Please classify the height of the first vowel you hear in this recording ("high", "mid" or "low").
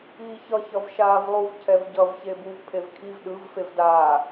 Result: high